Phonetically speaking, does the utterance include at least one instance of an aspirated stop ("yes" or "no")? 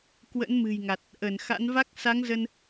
no